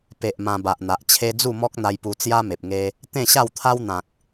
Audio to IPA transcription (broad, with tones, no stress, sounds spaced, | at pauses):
p e˨ ʔ m ã˧ b a˨ ʔ n̪ a˨ ʔ t͡ɕʰ e˦ d͡z u˥˧ m ɔ˦ k̚ n̪ a˧ j p u˧ t͡s j a˦ m e˨ p̚ ŋ e˧ | t̪ ẽ˥˧ ɕ a˥˧ w t̪ʰ a˦ w n̪ ã˨ k̚